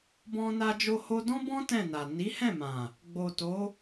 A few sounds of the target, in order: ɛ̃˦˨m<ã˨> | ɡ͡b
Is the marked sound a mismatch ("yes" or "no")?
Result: no